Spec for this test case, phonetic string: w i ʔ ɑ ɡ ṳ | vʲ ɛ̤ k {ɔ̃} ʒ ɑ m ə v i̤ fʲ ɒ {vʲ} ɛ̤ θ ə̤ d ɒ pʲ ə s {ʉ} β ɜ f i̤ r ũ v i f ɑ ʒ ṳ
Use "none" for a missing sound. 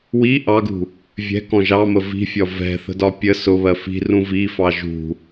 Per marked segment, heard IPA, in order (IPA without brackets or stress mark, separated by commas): ɔ̃, v, ʊ